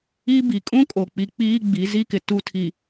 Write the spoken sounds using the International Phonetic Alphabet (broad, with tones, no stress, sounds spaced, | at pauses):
i˦ b i˨ kʼ ũ˦ kʼ o˨ k͡p i˨ k͡p iː˦ ɡ͡b i˨˦ z i˦ k ɪ˨ t u˦ tʰ i˨